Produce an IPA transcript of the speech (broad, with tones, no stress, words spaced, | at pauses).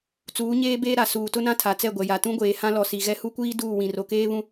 t͡suː˨˦ɲeː˦ beː˦ɾa˨ suː˨tʊ˦nã˦ tʰa˨t͡sɛ˦˨ɡʷɛ˨ja˨ tũ˦ɡʷeː˨hã˦lɔ˨ si˨ɣɛ˦ hu˦kʷiː˦ duː˦˨wĩ˨ ro˨keː˦ βũ˦